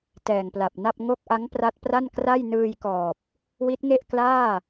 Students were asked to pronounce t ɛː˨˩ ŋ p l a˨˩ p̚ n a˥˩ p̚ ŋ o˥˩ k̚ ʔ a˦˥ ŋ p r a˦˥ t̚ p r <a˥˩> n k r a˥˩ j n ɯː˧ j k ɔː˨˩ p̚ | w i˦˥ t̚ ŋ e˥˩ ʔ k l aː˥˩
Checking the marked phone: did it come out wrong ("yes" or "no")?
no